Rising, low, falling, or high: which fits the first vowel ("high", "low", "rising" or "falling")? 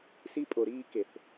high